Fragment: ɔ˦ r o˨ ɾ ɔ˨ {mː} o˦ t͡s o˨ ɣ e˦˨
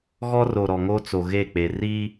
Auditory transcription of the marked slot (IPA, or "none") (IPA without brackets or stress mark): ŋ